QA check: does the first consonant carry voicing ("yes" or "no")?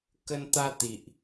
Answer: no